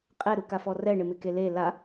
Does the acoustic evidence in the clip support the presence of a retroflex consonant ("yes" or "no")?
yes